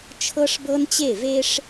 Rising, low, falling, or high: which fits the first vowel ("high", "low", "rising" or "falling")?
high